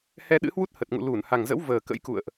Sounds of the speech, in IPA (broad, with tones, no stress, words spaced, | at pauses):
hɛ˧ɗɨ̰˧˥hwu˦˥t̚ hə˨˩t̚ŋṵ˧˨ lu˧˩nha˨˩ŋzə̰˧˥w vəː˨˩kə̰˧˥jkṵ˧˨ə̯ʔ